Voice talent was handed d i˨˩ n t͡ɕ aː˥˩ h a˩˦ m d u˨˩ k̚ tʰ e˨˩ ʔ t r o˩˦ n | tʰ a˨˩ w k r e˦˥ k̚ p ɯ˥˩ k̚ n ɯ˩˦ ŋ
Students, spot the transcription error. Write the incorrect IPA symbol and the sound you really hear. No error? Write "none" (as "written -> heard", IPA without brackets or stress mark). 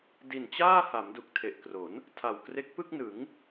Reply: t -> k